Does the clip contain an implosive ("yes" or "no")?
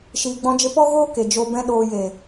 yes